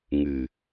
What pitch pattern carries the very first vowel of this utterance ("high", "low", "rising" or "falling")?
low